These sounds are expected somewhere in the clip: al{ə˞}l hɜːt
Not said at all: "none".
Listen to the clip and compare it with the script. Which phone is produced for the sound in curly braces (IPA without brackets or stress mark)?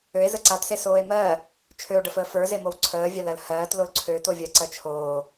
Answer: ɜ